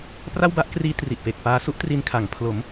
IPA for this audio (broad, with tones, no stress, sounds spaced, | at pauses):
p r a˥˩ w b a˥˩ ʔ k r iː˦˥ t r i˨˩ ʔ p e˨˩ k̚ p aː˧ s u˥˩ ʔ t r i˧ n kʰ a˩˦ ŋ pʰ l o˩˦ m